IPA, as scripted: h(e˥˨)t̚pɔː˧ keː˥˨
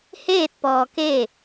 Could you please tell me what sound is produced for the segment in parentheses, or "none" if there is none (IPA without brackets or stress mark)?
eː˥˨